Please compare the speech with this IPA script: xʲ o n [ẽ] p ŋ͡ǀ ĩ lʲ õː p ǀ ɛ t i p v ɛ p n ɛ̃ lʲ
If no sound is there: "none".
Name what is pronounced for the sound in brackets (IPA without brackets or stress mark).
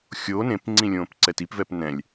ẽ